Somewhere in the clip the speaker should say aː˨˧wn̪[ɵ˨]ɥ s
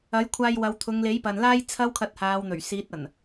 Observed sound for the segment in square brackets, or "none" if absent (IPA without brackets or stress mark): ɵ˨˩